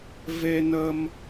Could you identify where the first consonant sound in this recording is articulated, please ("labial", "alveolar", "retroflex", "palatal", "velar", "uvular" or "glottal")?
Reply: labial